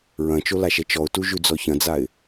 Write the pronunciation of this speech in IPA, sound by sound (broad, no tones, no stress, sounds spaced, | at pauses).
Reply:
ɹ ɐ̃ t͡ʃ o l a ʃ ɛ t͡ʃ ɔ ʊ̯ t u ʒ ʉ d͡z ɔ ç ɐ̃ d͡z a ɪ̯